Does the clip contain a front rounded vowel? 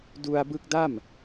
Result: no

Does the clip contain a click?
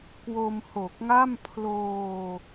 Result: no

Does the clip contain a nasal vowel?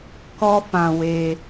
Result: yes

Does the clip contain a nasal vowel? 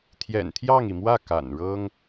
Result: no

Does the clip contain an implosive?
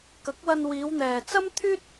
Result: no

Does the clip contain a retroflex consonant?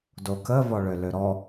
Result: yes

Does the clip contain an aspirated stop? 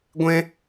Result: no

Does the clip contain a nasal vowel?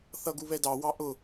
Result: no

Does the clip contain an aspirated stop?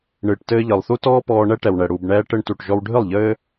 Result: no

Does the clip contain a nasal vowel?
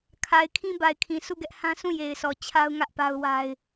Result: yes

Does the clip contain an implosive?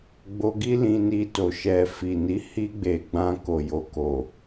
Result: no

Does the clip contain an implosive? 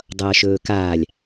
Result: no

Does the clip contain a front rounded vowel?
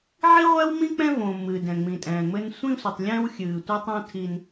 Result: no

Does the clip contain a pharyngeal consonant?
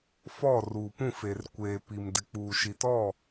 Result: no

